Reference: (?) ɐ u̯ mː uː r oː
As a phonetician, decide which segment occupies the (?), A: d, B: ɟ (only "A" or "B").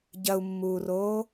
B